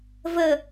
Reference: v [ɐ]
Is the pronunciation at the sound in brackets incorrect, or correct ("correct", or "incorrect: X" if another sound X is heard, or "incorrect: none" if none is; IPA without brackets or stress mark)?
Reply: incorrect: ə